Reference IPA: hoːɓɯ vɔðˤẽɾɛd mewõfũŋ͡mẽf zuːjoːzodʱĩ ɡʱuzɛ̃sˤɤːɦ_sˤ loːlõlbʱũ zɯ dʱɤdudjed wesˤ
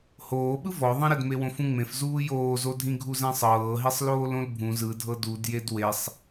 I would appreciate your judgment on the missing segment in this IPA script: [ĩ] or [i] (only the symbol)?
i